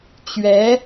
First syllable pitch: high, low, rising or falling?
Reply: rising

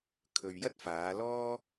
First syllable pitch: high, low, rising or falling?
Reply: low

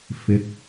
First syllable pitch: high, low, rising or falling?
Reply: rising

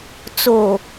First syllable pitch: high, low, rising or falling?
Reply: low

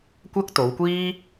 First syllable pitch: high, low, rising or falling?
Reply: high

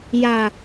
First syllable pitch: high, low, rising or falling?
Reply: low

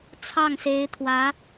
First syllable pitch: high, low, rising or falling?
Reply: falling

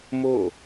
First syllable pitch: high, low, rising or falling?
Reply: falling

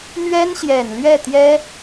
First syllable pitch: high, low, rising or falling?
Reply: high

